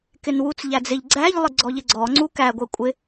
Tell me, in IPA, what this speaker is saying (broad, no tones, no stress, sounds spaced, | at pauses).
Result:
k ɪ n w u t͡s ʎ æ d͡z ɪ ʎ ɡ͡ǀ æ ʎ lˠ ɪ ɡ͡ǀ ɔ ʎ ɪ ɡ͡ǀ ɔ ŋ͡ǀ u k æ ɡʷ ɛ kʷʼ ɪ